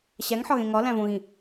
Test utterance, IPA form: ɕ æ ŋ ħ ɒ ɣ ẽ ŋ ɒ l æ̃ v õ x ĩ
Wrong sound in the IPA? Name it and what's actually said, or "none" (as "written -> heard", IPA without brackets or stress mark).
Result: x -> ɣ